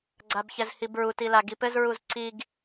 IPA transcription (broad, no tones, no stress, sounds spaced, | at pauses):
ɡ͡ǀ a b ç ɛ z h i b ɹ u t i l a ɡ i p ɘ z ɹ u z ǀ i ɡ